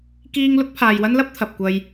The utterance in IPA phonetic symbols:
k iː˧ ŋ l ʊ˥ k̚ pʰ aː˨ j w ɐ˥ n l ɐ˥ p̚ t̪ʰ ɐ˨ p̚ kʷ ɐ˧ j

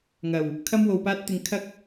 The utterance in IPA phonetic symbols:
ŋ ɐ˨˩ w | kʰ ɐ˥ m w o˧ w p aː˥ t̚ t̪ ɪ˧ ŋ kʰ ɐ˥ k̚

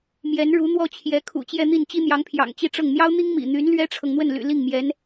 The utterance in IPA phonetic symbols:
m j ɛ˧˥ n ɻ u˧˥ n̪ w ɔ˥ t͡ɕʰ j ɛ˧˥ kʰ ṵ˨˩ t͡ɕ j ɛ˥˧ n̪ i˥˩ n t͡ɕ i˥ n̪ j ɑ˧˥ ŋ pʰ j ɑ̰˨˩ ŋ t͡ɕ i˥˧ ʈ͡ʂ ɤ˥˩ ŋ n̪ j ɑ˥ ʊ̯ n̪ i˥ ŋ m ḭ˨˩ n̪ y˧˥ n l ɥ ɛ˥ ʈ͡ʂʰ ɤ˨ ŋ n̪ w ə˥˩ n l y̰˨˩ l i˥˩ ŋ m j ɛ˧˥ n

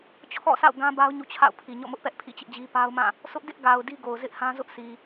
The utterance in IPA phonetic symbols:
t͡ɕʰ ɔ̰˦˨ s a̰˦˨ ʊ̯ ɡ ã˦ b a˦ ʊ̯ ɲ ṵ˦˨ t͡ɕʰ a̰˦˨ ʊ̯ pʰ i˨ ɲ ɔ̰˦˨ m ʊ˦ ʔ p ɛ˦ ʔ pʰ ḭ˦˨ t͡ɕ ɪ˦ ʔ d͡ʑ i˦ p a˦ ʊ̯ m ã˦˨ | sʰ ʊ˦ ʔ d ɪ˦ ʔ ɡ a˨ ʊ̯ d i˦ ɡ o˨ ʊ̯ z ɪ˦ ʔ h ã˦ z ʊ˦ ʔ sʰ i˨

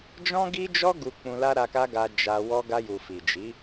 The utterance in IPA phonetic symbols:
d͡ʒ ɔ̃˦ ɡ i˦ d͡ʒ ɔ˦ ɡ u˧ k͡p ũ˧ l a˦ ɾ a˧ k a˦ ɡ a˧ d͡ʒ a˧ w ɔ˧ ɡ a˧ j u˨ f i˨ d͡ʒ i˨˦

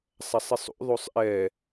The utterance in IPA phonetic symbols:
sˤ æ sˤ i sˤ ṵ ðˤ u sˤ ʔ ɛ

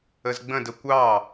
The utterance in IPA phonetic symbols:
ə z ɡ͡b ə̃ d ə kʷ ɑ

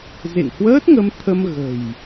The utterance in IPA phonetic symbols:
z ḛ˧˨ ŋ h w əː˦˥ t̚ ŋ ə˧ m t̪ʰ ə˧ m ɣ ə̤˨˩ j

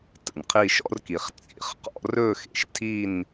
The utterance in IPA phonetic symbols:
t ə̰˩ n qʰ i˥˧ ʃ ɔ̰˥˧ r k i˩ χ t͡sʼ ḭ˥˧ χ q ɔ̰˥˧ r ɵ˥˧ x ḛ˩ ʃ tʰ i˥˧ n

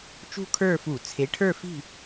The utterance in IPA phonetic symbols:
t͡ʃ ṳ˥˨ kʰ ə˞˥˨ f u˧˩˧ t͡sʰ e˩˥ ʈʰ ə˞˥˨ f i̤˥˨

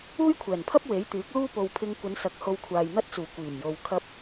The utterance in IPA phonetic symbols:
uː˥ j kʷʰ ɛː˨˩ n pʰ ɐ˥ p̚ w e˨˥ j t̪ yː˨˥ k̚ l uː˥ p o˨ w pʰ ɪ˧ ŋ kʷ ɐ˨˧ n s ɐ˨˥ k̚ h o˧ w kʷʰ aː˨ j n̪ ɐ˥ t̚ t͡s uː˨˩ kʷ iː˨˩ m j o˨ w kʰ ɐ˧ p̚

